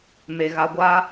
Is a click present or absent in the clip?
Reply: absent